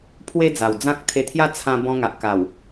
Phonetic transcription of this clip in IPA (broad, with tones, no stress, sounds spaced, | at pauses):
pʰ w e˦ d͡z a˨˩ w d͡z ã˦ k̚ t̪ʰ e˧ t̪ʰ j a˦ t͡sʰ ã˦ b ɔ̃˧ ŋ a˨ ʔ k a˨˩ w